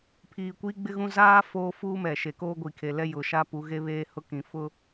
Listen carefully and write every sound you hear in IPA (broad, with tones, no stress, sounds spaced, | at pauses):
pʰ iː˨ kʷ iː˦ ɡ͡b ɪ˦ ɣ ũ˦ z aː˦ f oː˦ f uː˦ m ɛ˨ ʃ e˨ k oː˦ ɡʷ i˨ kʰ e˨ l ɛ˦ j ʊ˨ ʃ a˦ p u˨˦ ɣ e˦ β eː˦ h ʊ˦ k ĩ˨˦ f ʊ˦